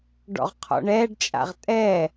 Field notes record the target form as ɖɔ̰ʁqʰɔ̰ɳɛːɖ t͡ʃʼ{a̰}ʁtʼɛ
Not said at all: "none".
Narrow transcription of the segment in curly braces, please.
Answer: a̰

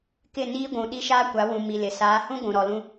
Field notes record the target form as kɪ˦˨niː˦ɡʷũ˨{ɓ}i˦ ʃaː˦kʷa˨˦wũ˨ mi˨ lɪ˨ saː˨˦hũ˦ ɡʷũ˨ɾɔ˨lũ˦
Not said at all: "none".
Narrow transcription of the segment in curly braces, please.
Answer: ɗ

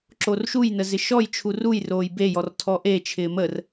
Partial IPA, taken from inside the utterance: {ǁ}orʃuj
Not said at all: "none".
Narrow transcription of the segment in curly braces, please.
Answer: ǁ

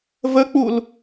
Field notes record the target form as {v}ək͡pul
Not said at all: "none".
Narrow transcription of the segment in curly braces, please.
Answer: v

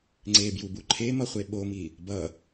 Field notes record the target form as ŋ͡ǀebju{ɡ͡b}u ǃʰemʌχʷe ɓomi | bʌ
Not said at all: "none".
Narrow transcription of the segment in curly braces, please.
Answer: b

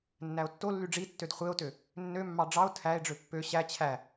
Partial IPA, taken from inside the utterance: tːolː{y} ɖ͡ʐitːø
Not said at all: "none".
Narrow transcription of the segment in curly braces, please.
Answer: y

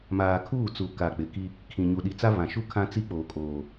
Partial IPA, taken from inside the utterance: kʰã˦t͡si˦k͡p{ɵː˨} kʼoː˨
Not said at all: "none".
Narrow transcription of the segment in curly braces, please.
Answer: oː˨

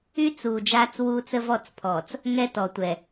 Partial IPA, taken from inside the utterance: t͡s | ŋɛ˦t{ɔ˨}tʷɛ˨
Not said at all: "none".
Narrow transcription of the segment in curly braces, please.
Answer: ɔ˨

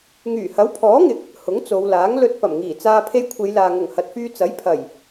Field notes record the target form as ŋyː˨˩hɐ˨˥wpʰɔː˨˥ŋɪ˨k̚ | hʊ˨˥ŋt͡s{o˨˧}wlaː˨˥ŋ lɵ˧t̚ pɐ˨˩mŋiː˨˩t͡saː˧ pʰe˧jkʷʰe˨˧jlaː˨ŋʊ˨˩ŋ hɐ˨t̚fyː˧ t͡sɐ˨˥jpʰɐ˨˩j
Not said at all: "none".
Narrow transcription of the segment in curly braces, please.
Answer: o˨˧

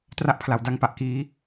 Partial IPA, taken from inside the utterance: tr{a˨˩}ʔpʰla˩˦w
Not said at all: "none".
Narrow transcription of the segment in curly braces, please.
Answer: a˦˥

